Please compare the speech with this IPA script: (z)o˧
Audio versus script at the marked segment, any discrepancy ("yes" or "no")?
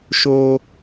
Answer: yes